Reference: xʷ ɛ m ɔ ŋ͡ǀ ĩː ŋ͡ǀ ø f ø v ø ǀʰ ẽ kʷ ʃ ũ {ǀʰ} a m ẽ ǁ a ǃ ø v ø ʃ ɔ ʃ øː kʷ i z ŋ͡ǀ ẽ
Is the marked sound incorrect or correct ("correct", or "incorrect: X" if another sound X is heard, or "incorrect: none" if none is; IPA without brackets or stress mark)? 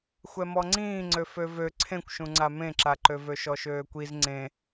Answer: incorrect: ŋ͡ǀ